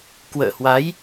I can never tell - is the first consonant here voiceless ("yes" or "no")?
yes